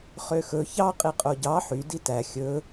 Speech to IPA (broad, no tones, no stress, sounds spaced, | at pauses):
χ ø x ɵ ç ɑ qʼ i qʼ o ɟ ɑ ħ y d i t æ xʲ ɵ